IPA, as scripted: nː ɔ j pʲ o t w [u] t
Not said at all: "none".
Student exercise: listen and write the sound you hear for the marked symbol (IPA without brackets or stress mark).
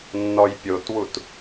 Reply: u